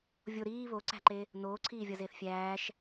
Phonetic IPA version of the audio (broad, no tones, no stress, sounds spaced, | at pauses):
vʲ o ɾ iː β o ǀ æ̤ ǃ e | n oː ǀʰ iː vʲ ɒ z eː θ fʲ æː ʃ